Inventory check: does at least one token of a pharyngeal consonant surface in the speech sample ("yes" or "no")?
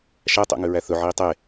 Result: yes